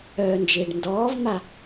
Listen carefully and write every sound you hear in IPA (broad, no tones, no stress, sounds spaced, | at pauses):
œː n d͡ʒ ɪː ɖ n d ɔː v m a